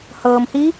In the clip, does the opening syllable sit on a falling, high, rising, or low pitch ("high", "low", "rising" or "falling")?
low